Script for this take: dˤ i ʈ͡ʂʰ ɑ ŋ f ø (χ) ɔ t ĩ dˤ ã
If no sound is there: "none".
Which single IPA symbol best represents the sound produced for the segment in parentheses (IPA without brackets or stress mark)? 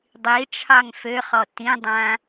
χ